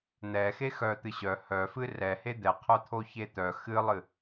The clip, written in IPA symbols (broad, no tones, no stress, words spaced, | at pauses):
n̪ɛxe xœt̪ɨ ɕœ hœ fɨrɛhe d̪ɛqʰœt̪ʰo çet̪œ xɨlˠɨ